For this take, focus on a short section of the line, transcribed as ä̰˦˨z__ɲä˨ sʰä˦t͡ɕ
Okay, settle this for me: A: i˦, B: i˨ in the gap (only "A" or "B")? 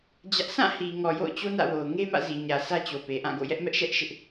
B